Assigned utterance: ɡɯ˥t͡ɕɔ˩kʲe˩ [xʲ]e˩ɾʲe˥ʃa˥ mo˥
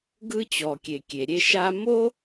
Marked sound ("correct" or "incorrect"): incorrect